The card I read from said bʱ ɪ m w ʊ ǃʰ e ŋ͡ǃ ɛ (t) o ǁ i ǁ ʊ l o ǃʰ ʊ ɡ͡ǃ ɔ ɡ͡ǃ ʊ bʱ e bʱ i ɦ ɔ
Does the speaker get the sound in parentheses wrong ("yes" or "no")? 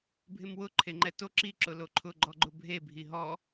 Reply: no